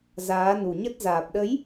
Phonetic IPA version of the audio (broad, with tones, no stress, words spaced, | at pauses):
zaː˨˦nu˨˩ɲə˦˥t̚ zaː˨˩p̚ɗə˨˦j